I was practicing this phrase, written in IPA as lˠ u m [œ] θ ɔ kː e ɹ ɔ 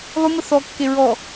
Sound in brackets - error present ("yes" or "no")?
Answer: yes